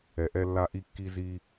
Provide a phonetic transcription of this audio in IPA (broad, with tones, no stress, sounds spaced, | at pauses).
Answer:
ɛ˨ ʔ ɛ˦ lː a˦ ʔ i˦ kː i˦ z i˦